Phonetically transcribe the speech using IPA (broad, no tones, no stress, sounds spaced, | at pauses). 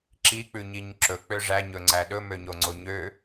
ǁ i k͡p ʉ ɲ i ɲ ǁ ɵ k͡p ø ʐ æ ɲ ɵ ŋ͡ǀ æ ɗ ɵ m ø ɲ o ŋ͡ǀ o ɲ ø